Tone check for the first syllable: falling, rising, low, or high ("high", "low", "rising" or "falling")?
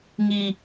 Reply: low